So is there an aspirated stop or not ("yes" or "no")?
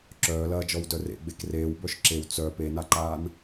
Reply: no